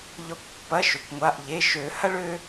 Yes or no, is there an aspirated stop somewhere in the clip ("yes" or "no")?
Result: no